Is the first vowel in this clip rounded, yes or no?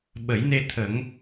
no